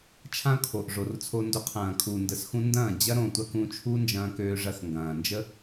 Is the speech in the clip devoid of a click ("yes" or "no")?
yes